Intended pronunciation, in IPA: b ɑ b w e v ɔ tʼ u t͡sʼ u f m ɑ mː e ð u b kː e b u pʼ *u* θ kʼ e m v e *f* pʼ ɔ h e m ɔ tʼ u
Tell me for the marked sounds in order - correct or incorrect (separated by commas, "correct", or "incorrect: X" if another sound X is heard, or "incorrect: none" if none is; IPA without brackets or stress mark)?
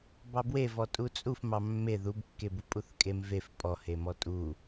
correct, correct